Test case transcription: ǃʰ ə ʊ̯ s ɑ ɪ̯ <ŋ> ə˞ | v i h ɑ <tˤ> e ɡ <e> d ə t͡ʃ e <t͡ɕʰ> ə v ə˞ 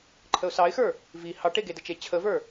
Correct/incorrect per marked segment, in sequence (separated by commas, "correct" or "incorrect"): incorrect, incorrect, correct, correct